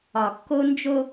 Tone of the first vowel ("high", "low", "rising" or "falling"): low